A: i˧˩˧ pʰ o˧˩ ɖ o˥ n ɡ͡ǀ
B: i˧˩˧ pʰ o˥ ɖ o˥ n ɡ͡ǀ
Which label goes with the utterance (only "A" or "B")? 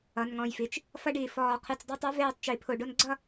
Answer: A